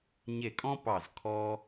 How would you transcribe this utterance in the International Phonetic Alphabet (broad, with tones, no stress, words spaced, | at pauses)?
ɲe˧˩kʼɔ̃˥pɑ˧˩z kʰɔ˧